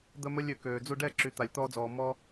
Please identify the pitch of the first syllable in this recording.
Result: high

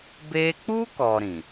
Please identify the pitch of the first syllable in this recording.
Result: high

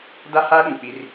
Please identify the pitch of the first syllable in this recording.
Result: high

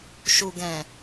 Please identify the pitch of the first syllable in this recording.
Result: low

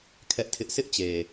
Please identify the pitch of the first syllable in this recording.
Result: high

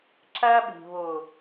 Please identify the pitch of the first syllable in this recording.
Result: high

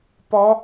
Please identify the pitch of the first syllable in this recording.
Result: high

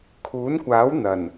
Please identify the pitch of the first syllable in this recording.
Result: rising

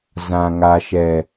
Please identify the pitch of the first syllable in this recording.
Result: low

